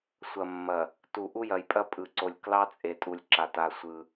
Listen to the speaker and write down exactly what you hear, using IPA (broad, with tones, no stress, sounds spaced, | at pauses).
sʷ ɐ˨ mː ɐ˨ | t u˨ ʔ u˦ j ɐ˨ j pʼ ɐ˦ pʼ ɯ˨ ǀ o˨ lʲ k l ɑ˦ t͡sʼ e˨ tʼ u˨ lʲ ǁ a˨ t a˦˨ sʷ ɯ˦